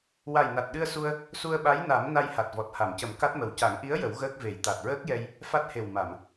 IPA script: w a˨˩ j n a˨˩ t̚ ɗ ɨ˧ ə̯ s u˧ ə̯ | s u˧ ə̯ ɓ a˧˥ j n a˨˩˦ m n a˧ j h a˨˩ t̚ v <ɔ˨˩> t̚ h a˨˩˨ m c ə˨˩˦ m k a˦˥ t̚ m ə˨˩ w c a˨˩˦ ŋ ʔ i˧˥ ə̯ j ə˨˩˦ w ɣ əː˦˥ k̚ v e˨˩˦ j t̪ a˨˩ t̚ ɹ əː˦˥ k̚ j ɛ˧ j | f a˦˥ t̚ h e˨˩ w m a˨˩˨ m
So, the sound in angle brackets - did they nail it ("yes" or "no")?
yes